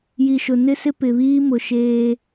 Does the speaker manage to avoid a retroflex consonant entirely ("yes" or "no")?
yes